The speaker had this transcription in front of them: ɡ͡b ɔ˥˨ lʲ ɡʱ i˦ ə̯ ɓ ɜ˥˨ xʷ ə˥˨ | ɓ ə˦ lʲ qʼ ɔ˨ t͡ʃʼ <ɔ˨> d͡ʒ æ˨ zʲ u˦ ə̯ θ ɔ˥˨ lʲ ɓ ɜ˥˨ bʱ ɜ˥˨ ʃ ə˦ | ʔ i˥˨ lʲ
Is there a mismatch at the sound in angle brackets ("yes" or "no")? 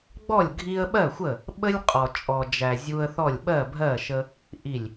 no